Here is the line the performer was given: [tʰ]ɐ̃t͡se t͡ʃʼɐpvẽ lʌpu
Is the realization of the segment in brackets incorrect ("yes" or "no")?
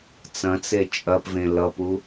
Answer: yes